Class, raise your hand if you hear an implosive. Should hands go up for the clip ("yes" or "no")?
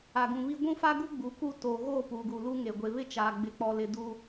no